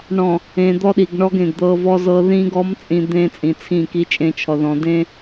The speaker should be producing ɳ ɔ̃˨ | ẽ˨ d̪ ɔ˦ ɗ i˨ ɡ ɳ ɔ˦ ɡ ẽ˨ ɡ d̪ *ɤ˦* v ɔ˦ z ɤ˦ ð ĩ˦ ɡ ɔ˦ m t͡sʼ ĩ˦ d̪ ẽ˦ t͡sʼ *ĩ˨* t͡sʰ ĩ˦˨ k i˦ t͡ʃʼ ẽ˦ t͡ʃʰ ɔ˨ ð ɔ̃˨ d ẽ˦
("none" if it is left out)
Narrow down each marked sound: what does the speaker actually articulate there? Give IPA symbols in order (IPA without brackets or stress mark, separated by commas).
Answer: ɤ˦, ĩ˨